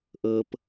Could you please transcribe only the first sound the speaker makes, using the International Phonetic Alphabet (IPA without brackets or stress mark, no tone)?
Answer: ʔ